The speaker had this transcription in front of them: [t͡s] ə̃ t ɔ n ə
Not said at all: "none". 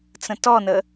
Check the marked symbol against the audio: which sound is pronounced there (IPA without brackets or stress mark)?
t͡s